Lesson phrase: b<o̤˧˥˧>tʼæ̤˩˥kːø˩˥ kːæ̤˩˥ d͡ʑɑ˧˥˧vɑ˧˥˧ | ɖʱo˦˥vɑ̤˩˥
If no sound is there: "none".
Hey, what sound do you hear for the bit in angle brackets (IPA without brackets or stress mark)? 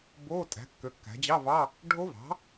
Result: o˧˥˧